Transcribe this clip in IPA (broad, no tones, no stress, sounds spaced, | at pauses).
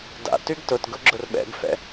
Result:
d a̰ t y ɡ t ʊ t ɡ ʊ ɡ͡ǁ ʊ r ɓ ɛ̰ ɡ f ɛ̰